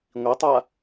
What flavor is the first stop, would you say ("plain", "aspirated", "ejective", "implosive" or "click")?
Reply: plain